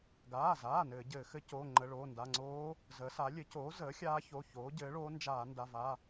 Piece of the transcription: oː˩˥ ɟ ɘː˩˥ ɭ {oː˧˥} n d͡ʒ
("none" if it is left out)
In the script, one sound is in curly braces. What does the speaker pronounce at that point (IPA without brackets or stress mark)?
oː˧˥